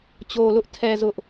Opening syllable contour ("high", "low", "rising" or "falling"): low